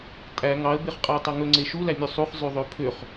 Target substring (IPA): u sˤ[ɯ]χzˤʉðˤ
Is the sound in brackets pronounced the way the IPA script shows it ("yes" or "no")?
no